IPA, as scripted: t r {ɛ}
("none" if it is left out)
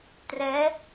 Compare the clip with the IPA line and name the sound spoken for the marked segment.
ɛ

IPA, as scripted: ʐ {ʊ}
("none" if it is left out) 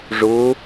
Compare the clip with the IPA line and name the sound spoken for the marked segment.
ʊ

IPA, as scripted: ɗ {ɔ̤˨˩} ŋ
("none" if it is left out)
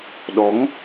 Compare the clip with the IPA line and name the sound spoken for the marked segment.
ɔ˨˦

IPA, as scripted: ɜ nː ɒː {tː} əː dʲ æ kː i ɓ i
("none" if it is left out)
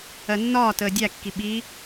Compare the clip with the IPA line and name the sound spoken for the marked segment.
t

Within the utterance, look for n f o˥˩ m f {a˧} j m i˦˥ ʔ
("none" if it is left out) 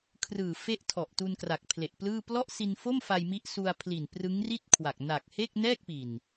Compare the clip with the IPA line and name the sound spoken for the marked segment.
a˧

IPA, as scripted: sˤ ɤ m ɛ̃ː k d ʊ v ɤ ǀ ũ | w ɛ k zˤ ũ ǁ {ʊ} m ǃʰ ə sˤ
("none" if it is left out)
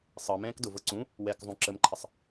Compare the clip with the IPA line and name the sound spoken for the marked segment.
ə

